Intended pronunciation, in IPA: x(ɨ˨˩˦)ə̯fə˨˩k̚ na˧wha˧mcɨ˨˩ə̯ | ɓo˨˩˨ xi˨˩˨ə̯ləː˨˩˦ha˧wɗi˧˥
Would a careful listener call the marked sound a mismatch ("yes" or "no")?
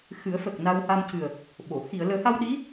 no